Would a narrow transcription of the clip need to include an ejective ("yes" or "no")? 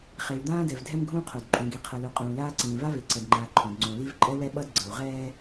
yes